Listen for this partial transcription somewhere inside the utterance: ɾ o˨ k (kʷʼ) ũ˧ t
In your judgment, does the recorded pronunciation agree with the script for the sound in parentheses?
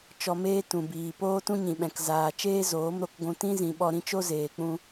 no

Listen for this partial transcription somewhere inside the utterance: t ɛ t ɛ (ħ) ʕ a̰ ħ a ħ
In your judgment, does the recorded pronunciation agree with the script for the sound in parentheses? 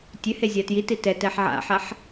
yes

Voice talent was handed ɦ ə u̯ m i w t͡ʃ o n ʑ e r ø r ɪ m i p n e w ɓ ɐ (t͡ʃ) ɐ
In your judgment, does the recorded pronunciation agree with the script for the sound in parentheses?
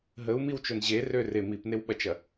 yes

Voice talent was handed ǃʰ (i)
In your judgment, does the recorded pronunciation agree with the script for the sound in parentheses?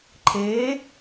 no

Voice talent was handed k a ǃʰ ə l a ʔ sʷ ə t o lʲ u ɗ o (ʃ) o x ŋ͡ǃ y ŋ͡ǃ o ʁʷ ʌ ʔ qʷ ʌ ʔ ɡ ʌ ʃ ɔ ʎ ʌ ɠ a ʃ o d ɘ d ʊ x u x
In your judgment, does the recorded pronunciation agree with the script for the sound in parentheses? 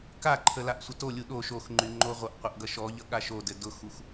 yes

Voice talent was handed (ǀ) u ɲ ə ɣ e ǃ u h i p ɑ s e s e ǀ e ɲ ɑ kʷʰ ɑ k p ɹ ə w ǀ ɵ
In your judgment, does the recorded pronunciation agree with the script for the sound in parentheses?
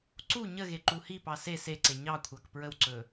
yes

